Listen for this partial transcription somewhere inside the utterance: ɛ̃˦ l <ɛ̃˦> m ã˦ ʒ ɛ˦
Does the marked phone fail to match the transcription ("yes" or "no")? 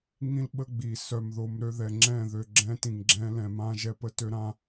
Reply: yes